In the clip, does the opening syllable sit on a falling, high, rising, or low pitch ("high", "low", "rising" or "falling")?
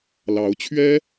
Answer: rising